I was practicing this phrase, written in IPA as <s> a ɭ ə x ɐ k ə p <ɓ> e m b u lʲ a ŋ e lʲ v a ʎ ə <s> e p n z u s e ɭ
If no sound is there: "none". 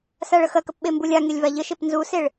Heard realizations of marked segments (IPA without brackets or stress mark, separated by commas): s, ɓ, ʃ